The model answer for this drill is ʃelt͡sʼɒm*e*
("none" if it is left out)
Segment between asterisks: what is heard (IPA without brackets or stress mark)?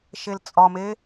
e